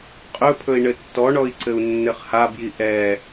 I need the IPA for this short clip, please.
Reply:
qʼɵpʰɵi̯ ɳɘtːɔɳɔi̯ ǀɘu̯nːɘχhabji ʔɛ

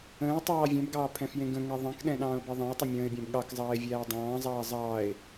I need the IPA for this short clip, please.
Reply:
ə̃ːʊ̯ tˤɑːvʲɛ̃bɡɑː pʰɛ̃fjẽɡə̃ŋɛ ðˤɛ̃kɗɛ̃ ɗɑ̃ːʊ̯beðˤɑ̃ə̯tˤə mʲə̃ːɪ̯bʲæ̃b ɠɑkzˤɑːɪ̯ vʲæːdˤɑ̃ːzˤɑː zˤɑːɪ̯

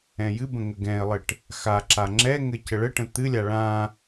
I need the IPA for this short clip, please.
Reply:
ɛ̃jɨbə̃ ŋəɡɛ̃ɪ̯lˠɘʈ | xaǁa ŋ͡ǁɛŋɘ cəɭəʈə̃ t̪ɨlʲa ɭã

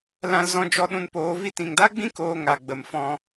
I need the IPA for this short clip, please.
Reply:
lã˧l zɔ̃˧ d͡ʒɔ˧ɗũ˧npoː˨˦ vi˧tĩ˨ŋda˦ɡ͡bĩ˦ koː˧ ŋa˨ɡ͡bə˨m fɔ̃˧

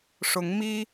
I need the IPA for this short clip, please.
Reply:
ʂʊ˨˦ŋmi˦

